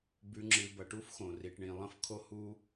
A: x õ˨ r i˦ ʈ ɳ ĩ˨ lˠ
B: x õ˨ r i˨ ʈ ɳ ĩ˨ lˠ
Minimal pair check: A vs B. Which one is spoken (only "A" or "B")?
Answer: B